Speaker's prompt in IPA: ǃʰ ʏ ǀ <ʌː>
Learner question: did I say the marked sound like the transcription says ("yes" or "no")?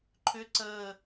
no